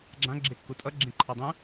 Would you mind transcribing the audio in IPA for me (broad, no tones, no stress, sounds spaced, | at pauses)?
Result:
ɡ͡ǁ ã ɡ͡ǁ e kː u tʼ ʌ ɡ͡ǁ ẽ ǃʰ ɒ dˤ ũ